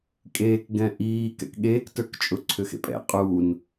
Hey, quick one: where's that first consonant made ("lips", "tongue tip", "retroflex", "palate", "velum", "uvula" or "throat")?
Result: velum